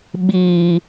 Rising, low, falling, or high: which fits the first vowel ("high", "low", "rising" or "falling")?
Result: high